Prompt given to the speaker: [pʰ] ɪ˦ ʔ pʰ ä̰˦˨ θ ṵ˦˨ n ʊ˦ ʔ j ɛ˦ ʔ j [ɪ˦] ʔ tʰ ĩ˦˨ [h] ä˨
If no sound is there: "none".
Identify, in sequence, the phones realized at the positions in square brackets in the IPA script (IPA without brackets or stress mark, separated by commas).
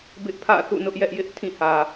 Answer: b, ɪ˦, h